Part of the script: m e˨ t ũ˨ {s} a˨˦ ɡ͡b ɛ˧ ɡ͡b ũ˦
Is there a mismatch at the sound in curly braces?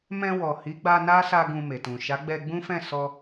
yes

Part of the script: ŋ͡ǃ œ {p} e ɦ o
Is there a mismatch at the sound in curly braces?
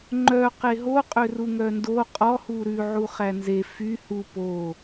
yes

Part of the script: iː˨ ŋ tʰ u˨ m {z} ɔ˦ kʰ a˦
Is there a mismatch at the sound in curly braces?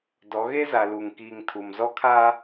no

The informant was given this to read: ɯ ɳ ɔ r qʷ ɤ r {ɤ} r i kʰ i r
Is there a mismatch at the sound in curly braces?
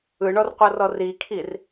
yes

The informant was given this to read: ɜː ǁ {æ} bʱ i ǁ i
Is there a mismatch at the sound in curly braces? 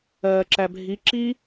no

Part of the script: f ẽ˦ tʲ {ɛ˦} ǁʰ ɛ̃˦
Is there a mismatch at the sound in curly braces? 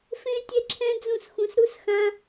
no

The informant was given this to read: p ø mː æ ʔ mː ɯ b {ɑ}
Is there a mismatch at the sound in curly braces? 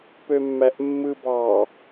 no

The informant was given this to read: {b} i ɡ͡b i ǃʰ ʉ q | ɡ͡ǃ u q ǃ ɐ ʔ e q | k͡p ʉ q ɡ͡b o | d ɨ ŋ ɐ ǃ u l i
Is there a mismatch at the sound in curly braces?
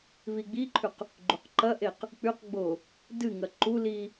yes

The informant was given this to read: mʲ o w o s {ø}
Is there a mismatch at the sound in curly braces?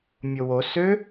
no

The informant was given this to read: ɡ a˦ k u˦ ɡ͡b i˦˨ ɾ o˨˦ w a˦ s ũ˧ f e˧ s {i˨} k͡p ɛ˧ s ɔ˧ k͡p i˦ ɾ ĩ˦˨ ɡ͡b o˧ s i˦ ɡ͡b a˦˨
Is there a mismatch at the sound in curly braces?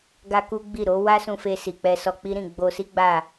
no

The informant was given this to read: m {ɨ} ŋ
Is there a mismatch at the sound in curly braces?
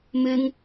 no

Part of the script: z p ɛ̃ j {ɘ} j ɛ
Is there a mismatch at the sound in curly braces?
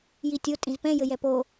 no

